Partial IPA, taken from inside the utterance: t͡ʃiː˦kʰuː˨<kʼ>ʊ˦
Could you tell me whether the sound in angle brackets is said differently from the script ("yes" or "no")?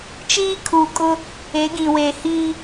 no